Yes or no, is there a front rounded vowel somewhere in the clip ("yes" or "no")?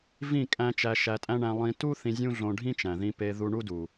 no